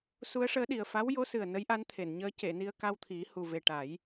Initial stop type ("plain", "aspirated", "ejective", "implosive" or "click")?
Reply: implosive